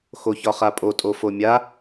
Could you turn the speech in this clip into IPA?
xoçɒχapʼo tʼofomʲa

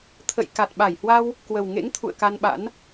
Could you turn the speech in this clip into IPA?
t̪ʰə̰˧˨j ka˨˩t̚ɓa˧˩jhwa˧w | kwə˨˩w ŋḛ˧˥ŋ t̪ʰṵ˧˨ə̯ka˧nɓa̰˧˥n

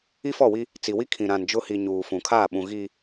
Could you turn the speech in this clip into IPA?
i˦fɔ˦˨wi˦ | t͡si˨wi˦ kʰĩ˨ɾã˨n d͡ʒʊ˦ hi˨ ɲuː˨fũ˨kʰaː˦˨ɓũ˨ ɣi˨

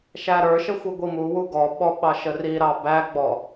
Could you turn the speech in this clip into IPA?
ʃæɾə˞ʃə xʷiɡʷimuwu ɡɔɓɔ ɓɑʃəriɾɑ bæɡ͡bɔ

